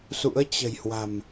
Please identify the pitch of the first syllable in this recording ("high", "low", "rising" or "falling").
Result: rising